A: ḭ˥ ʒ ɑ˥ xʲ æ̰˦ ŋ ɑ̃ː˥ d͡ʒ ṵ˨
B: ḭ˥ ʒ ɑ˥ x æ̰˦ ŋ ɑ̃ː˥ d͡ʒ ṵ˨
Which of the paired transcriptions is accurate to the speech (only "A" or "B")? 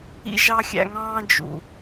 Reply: A